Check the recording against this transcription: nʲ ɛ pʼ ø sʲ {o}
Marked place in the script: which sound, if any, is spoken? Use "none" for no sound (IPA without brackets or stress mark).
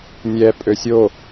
o